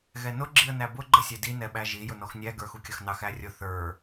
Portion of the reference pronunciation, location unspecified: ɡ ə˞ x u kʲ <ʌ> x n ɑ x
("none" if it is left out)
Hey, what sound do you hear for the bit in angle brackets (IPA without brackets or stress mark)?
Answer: ʌ